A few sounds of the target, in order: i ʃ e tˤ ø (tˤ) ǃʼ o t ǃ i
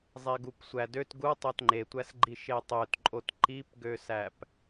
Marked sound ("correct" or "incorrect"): incorrect